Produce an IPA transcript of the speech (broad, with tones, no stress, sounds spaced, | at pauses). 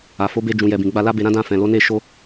a˨ f o˨˦ b e˧ d͡ʒ ũ˨ j ɛ˨ b ĩ˨ ɡ͡b a˧ l a˦ b e˧ ɾ ã˦ d ã˧ f ɛ̃˨ l o˨˦ n e˦ ʃ o˦